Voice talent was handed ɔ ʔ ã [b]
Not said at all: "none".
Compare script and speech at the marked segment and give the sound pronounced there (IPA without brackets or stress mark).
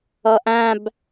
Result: b